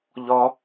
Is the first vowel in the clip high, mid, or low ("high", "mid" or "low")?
low